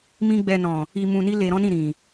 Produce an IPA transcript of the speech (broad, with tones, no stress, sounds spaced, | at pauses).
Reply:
m ĩ˦ ɡ͡b ɛ˧ n ɔ̃˨ | i˧ m ũ˧ n i˦ l e˧ ɾ ɔ̃˦ n ĩ˦˨ ɾ ĩ˨